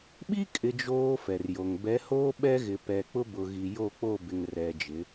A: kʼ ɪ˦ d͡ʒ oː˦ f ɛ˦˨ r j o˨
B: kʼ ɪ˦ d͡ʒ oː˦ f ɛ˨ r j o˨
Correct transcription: B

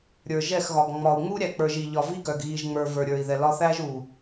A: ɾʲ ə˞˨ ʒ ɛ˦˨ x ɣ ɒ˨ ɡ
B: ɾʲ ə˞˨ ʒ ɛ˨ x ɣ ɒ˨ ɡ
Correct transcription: A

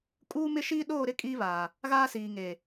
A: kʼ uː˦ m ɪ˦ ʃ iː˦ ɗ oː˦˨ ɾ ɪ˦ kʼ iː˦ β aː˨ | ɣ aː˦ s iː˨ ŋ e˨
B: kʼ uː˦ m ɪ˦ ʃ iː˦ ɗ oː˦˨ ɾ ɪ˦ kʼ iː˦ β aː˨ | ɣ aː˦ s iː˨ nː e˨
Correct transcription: A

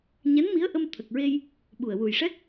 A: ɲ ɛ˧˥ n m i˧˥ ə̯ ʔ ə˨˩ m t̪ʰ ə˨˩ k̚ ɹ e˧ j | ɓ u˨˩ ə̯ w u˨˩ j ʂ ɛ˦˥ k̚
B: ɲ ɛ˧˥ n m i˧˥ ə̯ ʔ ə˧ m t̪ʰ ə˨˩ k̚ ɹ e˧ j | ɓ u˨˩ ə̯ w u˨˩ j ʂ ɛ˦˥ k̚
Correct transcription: B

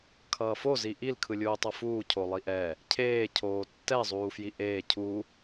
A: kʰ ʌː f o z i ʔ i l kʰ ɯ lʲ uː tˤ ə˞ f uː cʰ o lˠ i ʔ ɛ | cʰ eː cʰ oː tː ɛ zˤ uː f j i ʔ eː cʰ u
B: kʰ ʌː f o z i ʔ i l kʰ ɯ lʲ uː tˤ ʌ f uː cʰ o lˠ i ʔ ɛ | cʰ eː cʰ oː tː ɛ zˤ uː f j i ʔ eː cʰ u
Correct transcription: B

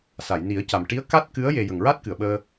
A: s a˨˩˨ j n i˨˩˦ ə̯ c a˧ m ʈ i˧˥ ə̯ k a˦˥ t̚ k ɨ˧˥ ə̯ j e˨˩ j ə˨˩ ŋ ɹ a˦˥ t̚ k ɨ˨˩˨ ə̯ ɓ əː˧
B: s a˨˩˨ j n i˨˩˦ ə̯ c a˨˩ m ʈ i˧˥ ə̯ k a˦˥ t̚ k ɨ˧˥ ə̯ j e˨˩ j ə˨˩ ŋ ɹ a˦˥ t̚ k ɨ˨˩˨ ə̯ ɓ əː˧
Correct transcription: B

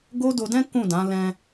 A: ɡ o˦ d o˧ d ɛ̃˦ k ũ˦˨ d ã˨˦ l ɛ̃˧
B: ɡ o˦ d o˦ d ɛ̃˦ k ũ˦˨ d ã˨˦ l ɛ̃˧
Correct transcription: A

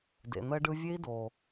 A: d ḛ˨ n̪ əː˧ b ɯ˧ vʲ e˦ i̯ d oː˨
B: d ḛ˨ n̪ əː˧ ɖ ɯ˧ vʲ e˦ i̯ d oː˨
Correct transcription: B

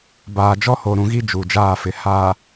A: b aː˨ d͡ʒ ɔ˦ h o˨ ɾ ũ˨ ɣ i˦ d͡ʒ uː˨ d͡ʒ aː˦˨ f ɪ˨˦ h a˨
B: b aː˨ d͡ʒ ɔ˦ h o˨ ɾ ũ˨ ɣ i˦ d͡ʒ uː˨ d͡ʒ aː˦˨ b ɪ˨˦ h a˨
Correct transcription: A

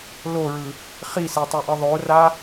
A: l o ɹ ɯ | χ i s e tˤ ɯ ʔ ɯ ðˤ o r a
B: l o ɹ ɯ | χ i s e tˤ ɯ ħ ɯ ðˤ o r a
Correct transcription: A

